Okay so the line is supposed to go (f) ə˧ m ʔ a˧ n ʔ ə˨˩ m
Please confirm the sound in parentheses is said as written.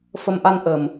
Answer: yes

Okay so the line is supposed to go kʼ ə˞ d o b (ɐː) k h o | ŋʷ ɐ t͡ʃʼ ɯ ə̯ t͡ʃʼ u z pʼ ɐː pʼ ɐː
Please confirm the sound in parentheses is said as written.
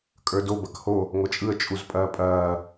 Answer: no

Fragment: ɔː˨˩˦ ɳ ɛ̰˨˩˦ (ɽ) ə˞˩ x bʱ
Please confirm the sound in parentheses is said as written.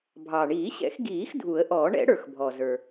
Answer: yes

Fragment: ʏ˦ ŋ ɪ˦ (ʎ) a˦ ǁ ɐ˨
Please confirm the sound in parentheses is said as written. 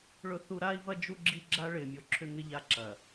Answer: yes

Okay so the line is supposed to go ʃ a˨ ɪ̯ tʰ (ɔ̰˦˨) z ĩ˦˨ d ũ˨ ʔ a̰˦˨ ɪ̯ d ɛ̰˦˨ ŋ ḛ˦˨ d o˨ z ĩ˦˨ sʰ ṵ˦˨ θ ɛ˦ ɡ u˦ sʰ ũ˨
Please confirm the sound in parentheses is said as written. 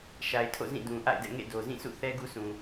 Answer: no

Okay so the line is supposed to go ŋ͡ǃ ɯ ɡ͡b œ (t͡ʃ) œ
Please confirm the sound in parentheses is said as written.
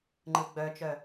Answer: yes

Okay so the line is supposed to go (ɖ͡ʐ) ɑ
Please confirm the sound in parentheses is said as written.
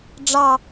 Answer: yes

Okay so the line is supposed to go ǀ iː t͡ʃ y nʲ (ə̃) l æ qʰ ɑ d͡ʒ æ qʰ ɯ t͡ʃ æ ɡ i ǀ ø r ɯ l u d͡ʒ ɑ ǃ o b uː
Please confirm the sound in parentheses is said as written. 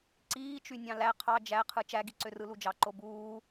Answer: no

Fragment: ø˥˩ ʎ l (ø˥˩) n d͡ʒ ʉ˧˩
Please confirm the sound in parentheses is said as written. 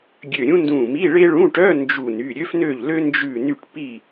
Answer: no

